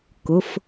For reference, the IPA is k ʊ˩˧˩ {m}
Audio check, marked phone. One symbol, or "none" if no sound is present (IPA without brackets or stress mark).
f